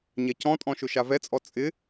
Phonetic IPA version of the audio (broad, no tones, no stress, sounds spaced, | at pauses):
ɲ ɛ c ɔ̃ tʼ ɔ̃ ʃ ʊ ʃ a v ɛ t͡sʼ ɔ t͡sʼ ɪ